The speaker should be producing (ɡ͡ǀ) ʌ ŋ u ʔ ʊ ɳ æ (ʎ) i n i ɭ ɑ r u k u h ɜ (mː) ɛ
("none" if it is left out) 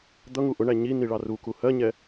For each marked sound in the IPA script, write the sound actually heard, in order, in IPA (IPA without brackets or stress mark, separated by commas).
d̪, ɲ, ɲ